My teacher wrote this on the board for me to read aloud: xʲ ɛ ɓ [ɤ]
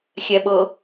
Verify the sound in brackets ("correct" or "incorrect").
correct